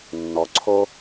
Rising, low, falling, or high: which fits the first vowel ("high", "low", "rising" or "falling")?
low